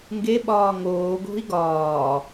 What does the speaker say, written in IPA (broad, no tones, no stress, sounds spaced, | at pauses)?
ŋ ɡ e ɓ ɒː ŋ oː ɡ o̤ i̯ ɡ ɒː